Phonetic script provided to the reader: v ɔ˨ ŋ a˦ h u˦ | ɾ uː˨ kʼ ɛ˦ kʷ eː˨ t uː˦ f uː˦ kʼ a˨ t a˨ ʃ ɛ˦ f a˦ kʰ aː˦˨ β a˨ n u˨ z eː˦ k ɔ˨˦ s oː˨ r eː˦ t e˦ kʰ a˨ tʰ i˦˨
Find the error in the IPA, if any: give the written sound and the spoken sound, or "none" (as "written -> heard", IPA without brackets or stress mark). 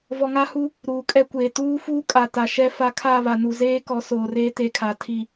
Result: none